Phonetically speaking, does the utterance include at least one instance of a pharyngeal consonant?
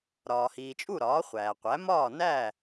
no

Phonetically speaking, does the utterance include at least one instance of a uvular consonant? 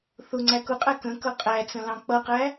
yes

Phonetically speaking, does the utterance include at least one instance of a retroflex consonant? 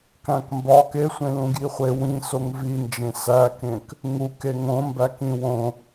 no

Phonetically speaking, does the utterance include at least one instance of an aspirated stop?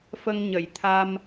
yes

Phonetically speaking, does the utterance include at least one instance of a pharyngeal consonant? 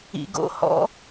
no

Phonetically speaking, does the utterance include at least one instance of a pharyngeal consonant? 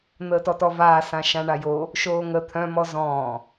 no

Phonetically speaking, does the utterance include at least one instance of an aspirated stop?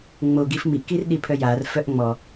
yes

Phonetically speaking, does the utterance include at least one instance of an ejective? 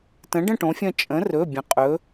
yes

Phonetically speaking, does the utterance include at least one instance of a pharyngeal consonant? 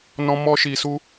no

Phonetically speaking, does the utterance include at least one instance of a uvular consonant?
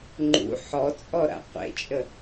yes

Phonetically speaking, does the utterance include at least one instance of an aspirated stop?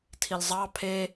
yes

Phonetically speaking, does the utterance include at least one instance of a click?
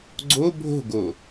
yes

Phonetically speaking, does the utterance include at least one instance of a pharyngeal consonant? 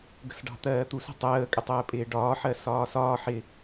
yes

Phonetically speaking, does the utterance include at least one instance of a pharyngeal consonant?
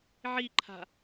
yes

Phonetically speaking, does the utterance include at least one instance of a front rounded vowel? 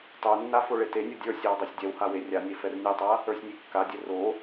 no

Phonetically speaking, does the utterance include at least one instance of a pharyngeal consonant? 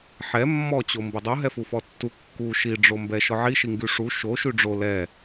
yes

